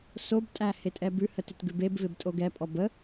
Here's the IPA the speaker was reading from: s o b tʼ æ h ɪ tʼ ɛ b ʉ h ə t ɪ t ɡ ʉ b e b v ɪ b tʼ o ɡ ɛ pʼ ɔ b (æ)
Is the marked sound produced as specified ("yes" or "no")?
no